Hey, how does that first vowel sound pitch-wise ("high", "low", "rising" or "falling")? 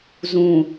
low